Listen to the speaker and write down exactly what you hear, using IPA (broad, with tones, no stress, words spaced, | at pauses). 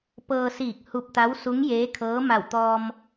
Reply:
pɤː˧siː˧˩k̚ hu˧p̚t̪a˧˥w su˧˥ŋjeː˧˥kʰɤː˧˥ ma˧˩wt̪ɔː˧m